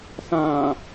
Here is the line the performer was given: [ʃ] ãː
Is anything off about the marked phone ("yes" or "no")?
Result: yes